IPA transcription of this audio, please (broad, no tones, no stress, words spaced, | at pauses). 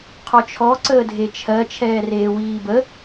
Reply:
qʰɔt͡ʃʰɔ ǀəːdʱet͡ʃʰɜ t͡ʃʰɛːreːwiːbə